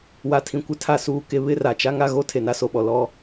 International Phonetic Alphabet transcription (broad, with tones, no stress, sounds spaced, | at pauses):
w a˨ tʰ ĩ˨ kʷ ɪ˨˦ tʰ a˨ s uː˨ k e˨ β ɪ˦ r a˨ t͡ʃ a˦ ŋ a˦ ɣ o˦ tʰ e˨ n a˦ s o˨ ɓ ɔ˨ l ɔ˦